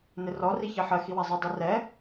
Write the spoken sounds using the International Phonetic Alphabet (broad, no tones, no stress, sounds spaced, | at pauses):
n ɪ r ɔ r i ç ɜ ħ ɜ x i w a zˤ e dˤ ɛ r ɛ